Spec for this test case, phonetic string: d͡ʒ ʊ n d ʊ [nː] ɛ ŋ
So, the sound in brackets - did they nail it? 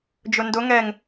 no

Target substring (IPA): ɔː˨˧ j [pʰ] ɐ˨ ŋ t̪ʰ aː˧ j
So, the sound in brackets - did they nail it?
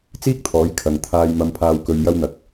no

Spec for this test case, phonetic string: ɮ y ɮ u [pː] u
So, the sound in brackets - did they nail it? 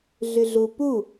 no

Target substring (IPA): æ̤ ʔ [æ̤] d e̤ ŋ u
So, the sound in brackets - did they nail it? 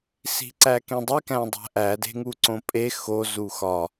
no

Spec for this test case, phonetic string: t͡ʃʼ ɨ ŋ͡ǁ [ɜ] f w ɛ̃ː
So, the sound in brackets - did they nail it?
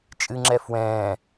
no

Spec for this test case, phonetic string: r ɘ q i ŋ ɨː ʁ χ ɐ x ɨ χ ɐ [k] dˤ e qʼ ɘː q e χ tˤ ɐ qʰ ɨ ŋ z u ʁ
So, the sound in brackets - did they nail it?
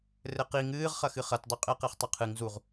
no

